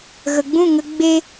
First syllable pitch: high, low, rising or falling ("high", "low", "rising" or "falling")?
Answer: low